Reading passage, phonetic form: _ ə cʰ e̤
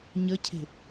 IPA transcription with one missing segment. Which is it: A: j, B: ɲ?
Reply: B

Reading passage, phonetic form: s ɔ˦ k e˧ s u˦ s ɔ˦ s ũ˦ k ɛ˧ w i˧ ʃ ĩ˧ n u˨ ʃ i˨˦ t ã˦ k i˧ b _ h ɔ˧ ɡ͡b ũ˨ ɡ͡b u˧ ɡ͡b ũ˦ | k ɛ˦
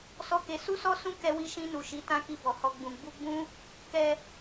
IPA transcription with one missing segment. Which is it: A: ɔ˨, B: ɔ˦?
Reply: A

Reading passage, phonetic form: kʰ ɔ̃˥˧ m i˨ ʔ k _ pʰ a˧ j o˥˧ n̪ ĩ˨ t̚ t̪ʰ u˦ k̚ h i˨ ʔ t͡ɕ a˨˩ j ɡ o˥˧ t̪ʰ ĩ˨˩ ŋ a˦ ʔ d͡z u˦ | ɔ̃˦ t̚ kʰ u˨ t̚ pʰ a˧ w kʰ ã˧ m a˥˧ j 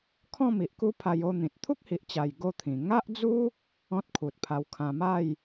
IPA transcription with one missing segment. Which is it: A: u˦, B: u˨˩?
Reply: A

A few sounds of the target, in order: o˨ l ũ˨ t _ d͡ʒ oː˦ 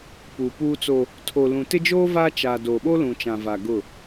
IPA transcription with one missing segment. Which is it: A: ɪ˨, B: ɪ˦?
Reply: B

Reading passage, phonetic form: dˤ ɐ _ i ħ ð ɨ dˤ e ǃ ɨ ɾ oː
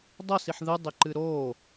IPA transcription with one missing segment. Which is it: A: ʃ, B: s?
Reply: B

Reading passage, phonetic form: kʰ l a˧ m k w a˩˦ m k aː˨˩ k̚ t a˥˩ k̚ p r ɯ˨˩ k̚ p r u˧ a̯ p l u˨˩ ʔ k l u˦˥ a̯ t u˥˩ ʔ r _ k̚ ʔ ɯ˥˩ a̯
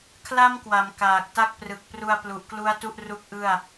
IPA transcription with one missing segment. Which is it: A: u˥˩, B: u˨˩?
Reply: A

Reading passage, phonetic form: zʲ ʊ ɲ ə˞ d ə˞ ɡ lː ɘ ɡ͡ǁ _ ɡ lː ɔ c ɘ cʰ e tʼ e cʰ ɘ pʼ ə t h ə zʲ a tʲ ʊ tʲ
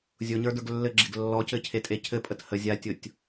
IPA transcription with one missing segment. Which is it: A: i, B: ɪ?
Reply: B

